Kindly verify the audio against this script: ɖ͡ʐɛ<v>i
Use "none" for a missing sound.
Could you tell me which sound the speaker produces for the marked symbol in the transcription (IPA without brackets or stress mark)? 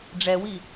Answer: w